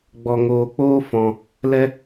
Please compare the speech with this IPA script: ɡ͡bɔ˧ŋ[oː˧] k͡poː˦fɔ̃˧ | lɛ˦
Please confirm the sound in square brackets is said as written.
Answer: yes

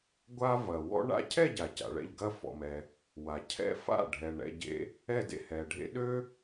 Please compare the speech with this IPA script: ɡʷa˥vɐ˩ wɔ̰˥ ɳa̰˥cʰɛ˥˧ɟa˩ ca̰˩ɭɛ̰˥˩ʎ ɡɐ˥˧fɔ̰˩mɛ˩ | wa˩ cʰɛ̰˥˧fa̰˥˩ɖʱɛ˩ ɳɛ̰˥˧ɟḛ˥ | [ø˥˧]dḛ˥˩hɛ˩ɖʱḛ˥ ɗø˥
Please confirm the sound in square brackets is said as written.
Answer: no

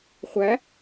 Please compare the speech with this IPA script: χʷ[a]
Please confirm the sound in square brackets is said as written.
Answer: no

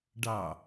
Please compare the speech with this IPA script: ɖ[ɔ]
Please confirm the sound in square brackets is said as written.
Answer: no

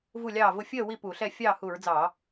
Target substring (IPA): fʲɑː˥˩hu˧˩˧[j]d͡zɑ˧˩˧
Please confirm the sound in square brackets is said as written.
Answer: no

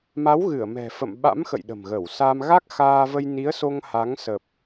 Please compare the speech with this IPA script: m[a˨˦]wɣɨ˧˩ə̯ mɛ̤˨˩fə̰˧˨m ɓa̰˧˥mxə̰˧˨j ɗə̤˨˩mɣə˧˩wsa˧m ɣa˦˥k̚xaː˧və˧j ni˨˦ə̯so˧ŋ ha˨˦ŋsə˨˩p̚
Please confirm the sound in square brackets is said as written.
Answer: yes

